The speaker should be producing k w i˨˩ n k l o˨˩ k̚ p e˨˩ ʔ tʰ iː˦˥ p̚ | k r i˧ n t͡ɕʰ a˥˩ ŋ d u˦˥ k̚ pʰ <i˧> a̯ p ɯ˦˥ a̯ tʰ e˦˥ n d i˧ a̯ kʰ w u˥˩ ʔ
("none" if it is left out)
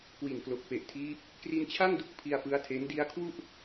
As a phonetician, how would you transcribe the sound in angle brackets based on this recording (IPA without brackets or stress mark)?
i˧